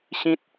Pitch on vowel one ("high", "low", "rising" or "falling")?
high